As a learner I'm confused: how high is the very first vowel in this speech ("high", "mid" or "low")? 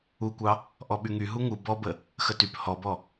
high